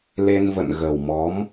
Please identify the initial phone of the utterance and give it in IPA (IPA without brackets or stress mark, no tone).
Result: l